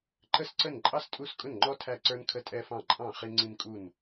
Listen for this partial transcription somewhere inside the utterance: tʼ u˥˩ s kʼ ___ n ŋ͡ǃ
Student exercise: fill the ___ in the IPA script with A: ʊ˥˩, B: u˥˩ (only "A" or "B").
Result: A